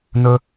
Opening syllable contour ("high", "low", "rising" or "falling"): high